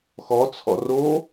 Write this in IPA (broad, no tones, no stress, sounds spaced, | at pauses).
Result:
x ɔ t͡sʰ ɔ̰ r o